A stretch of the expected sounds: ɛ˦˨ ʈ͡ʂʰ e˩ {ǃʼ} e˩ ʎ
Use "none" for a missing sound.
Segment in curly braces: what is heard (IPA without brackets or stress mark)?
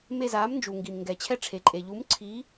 ǃʼ